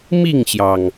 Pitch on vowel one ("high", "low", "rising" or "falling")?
falling